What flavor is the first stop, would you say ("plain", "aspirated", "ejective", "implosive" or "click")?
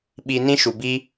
implosive